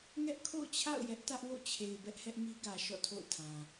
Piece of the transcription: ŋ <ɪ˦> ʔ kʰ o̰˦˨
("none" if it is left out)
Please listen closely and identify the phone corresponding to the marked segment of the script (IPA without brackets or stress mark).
ɛ˦